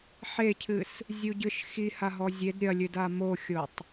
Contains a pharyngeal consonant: yes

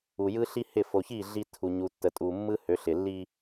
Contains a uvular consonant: no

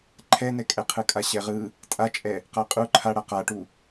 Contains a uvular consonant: yes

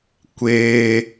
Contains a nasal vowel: no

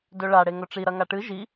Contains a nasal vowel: no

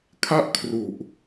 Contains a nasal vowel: no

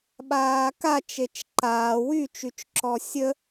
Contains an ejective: no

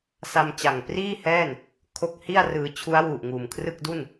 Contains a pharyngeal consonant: no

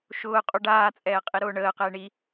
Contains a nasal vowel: no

